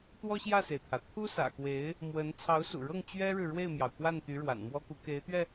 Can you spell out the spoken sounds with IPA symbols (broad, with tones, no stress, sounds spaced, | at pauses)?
t̪ w ɔ˥ ɕ j ä˥˩ s e˩ ɪ̯ t̪ʰ ä˩ t̪ʰ u˥ s ä̰˨˩ k w e˧˥ ɪ̯ | m w ə˧˥ n t͡sʰ ɑ˧˥ ʊ̯ s ṵ˨˩ ɻ ɤ˥˩ ŋ t͡ɕ ɥ ɛ˥ ɻ ɻ̩˨ ɻ w e˥˩ ɪ̯ m j ɑ˩ ʊ̯ k w a˥˩ n t̪ y˧˥ ɻ w a̰˨˩ n m w ɔ˥ k u˧˥ k e˧˥ ɪ̯ t̪ ɥ ɛ˧